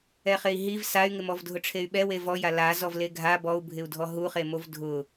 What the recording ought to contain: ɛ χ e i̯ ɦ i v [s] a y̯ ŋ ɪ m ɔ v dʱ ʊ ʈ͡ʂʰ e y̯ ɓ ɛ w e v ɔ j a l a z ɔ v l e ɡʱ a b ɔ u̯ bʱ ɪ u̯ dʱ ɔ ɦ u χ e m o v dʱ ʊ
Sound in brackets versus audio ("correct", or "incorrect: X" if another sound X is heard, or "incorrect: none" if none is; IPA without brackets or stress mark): correct